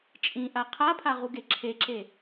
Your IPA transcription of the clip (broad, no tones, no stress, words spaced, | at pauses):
t͡ʃʼĩʔa qʰapʰaʁu ɡeǁʰeǁe